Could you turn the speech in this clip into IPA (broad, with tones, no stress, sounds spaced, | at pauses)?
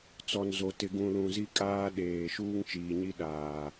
t͡s ɔ˨ n z o˨ t ɪ˨ ɡ ũ˨ l ũ˨ z i˦ kʼ aː˦ ɗ eː˨ ʃ uː˦ ŋ t͡ʃ iː˨ ɲ i˦ ɗ aː˨